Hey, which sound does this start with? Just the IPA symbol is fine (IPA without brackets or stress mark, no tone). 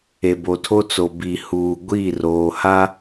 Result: e